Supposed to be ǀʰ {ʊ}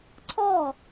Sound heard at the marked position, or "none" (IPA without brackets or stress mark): ɔ